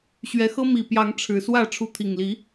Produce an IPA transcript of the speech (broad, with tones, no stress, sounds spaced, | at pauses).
ɕ ɥ ɛ˨˦ x ɤ˦ m i˨˩ p j ɑ˨˦ ŋ ʈ͡ʂʰ ɻ̩˨˩ s w ä˥˨ ʈ͡ʂʰ u˨˦ t̪ʰ i˨˩ ŋ l i˨˦